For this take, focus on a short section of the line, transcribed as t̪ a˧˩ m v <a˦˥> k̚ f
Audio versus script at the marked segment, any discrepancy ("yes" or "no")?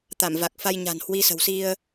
yes